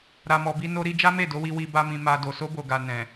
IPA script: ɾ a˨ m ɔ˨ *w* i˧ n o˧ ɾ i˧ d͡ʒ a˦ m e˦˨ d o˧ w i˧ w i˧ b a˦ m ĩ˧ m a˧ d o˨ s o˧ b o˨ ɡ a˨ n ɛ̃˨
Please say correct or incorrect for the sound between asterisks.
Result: incorrect